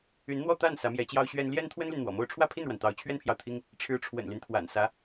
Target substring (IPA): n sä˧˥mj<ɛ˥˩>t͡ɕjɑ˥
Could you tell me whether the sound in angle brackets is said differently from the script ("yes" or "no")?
yes